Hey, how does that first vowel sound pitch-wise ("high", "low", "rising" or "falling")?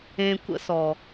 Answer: low